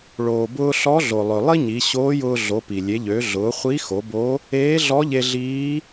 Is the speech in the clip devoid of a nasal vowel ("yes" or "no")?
yes